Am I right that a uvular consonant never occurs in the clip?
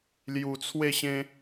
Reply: yes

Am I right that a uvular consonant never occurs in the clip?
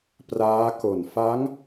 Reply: yes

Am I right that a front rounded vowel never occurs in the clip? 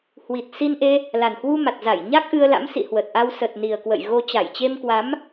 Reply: yes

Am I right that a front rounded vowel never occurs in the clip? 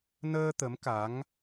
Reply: yes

